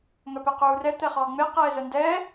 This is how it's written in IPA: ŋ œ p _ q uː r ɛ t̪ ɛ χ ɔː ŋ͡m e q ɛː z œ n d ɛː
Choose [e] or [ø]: e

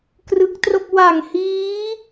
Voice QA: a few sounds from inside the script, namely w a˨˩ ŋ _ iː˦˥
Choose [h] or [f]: h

